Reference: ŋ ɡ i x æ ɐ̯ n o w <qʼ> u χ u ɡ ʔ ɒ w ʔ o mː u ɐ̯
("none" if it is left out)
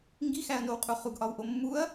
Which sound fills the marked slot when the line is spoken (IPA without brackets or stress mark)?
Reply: qʼ